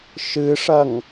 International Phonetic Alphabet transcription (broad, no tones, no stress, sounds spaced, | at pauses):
ʃ ɨ ʂ ɐ ŋ